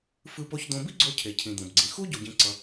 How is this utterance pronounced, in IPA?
fɯ˧po˧çd̪õ˧ bi˥ɡ͡ǀo˧cʰe˩cʰĩ˩ d̪õ˩bɡ͡ǀĩ˩ xu˥ ɟo˧ɟĩ˧ ǀʌ˧

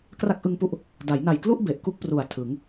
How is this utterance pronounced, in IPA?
kra˦˥k̚ʔɯ˧ŋpu˦˥ʔ | da˩˦jna˨˩jklu˥˩ʔ be˨˩ʔku˥˩k̚pru˨˩a̯ tʰɯ˩˦ŋ

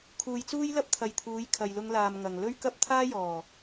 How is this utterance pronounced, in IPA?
kʰuː˨jt͡suː˥jlɐ˥p̚t̪ʰɐ˨j t̪ʰuː˨˧jkʰɐ˨jlʊ˧ŋlaː˨m ŋɐ˨ŋ lɵ˥ɥkɐ˥p̚ t̪ʰaː˥jɔː˨˩

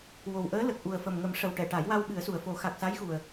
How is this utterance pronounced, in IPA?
wo˨˩wʔəː˧˥ lə˨˩k̚ʔu˨˩ə̯fə˨˩m ŋə˨˩˦mʂə˨˩wʈɛ˨˩˨ ʈa˨˩˦jwa˧w ɓɨ˨˩˦ə̯su˨˩ə̯fo˨˩˦ xa˨˩k̚sa˧˥jxu˨˩ə̯

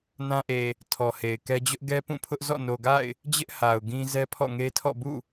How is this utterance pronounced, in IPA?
nã˦ʔe˨ | tʰɔ˨he˨ɪ̯kɛ˦ d͡ʑʊ˦ʔɡɛ˦pũ˦˨pʰʊ˦ʔ zɔ̰˦˨no˨ɡa̰˦˨ɪ̯ | d͡ʑɪ˦ʔ ha˨ʊ̯ɡĩ˦ zɛ˦pʰɔ̰˦˨ŋe˦tʰɔ̰˦˨ bṵ˦˨

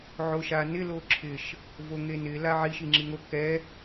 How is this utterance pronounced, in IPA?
ʕoʃanɪ loǁʰɪʃ | voŋenɪ laʕiʃ iŋ͡ǁiŋo kɛ

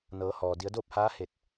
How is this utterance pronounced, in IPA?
nɤː˩˧hɔː˩ di˩˧ə̯doː˥˨p̚haː˧˥ he˧˩t̚

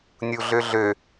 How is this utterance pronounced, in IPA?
nʲuɮøɮø

